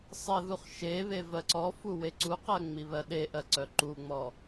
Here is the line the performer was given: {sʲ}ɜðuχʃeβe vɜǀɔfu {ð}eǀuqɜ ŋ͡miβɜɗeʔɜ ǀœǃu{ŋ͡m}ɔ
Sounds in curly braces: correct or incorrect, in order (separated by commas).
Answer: incorrect, incorrect, correct